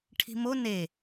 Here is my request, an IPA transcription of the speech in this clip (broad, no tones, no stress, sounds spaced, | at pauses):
ʈʰ i̤ m o n e